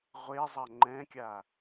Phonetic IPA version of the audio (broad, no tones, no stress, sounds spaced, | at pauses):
ʁʷ e zˤ a ŋ͡ǃ ɛ̃ kʲ a